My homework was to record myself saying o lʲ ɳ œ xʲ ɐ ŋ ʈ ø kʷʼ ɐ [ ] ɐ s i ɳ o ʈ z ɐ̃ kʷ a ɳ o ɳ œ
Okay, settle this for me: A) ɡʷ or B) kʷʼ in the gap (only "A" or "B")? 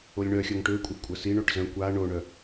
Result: B